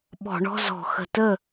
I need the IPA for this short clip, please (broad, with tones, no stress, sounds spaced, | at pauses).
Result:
ɓ ɔ̤˧˩˧ ɳ ɔ̤˧˥˧ z ɔ̤˧˩˧ x ə̤˨˩ t ə˥˩